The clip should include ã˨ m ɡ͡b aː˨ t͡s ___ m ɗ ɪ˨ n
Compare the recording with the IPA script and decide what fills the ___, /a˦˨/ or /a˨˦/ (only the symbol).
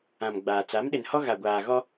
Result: a˨˦